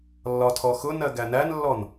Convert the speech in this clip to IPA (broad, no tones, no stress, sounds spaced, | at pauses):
lː ɒ tʰ ɔ x ʊ n ɜ ɡ æ n æ n lː ɔ n